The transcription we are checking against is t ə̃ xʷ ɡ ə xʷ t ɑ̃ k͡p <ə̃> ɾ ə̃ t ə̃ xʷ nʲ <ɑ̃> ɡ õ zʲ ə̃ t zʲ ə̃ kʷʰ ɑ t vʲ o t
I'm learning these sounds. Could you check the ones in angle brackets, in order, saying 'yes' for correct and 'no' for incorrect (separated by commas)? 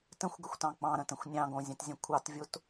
no, yes